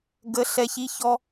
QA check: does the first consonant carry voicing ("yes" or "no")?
yes